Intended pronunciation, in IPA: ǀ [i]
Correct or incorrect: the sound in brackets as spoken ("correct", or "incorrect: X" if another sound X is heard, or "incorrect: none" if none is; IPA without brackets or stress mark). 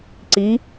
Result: correct